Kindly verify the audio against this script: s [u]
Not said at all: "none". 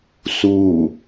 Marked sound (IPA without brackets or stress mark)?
u